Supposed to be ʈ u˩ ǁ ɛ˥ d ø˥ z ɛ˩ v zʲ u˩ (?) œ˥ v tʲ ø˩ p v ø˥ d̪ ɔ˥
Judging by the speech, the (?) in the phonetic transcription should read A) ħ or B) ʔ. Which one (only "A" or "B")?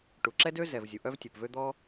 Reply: B